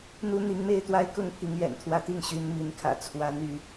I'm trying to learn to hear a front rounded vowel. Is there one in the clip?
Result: yes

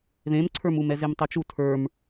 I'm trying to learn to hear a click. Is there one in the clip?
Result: yes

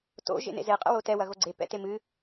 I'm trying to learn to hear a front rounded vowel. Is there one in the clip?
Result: no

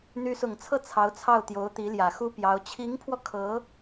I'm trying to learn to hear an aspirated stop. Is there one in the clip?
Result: yes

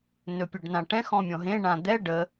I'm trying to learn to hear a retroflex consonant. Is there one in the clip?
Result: yes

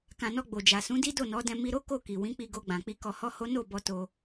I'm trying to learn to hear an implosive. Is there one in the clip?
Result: no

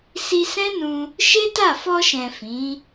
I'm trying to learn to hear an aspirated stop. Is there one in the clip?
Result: no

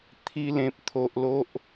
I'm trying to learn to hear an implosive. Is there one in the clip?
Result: no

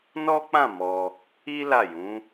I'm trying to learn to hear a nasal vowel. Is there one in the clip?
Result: yes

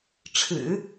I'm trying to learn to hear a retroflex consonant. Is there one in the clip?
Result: yes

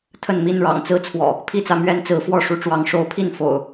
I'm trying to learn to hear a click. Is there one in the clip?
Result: no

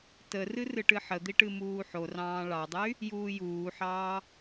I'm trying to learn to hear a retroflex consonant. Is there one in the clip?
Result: yes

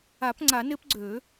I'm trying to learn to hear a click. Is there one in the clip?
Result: yes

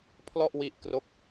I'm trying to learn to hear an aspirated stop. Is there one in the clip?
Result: yes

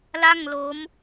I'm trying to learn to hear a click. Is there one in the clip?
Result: no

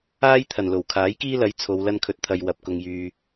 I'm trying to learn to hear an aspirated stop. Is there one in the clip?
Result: yes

